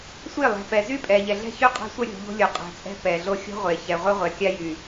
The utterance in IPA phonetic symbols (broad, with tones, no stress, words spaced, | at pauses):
sʷe˦˨lˠɛ̤˨ pɛ˨zy˦pʼɛ˨ʎɛ˨ ɮɛ̤˦çy˦qʼa̤˦ sʷœ˦ɾʲo̤˨ ʎo̤˦lʲo˨qʼɛ̤˨t͡sʼɛ̤˦ pɛ˨ɮo˦ xʲo̤˦ʁʷe˨ çɛ˨ʁʷœ˦ʁʷɛ˨kʲa˦ jy˨